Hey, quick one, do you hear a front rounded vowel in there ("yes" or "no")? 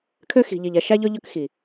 yes